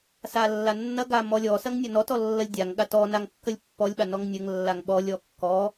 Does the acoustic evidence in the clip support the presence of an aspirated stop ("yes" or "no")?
no